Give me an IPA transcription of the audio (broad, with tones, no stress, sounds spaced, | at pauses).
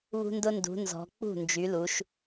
β ṳ˦ n d ʊ˦ n d ṳ˨˦ n z ɔ̤˨˦ k͡p ṳ˥˨ n d͡ʒ y˨˦ l u˨˦ ʃ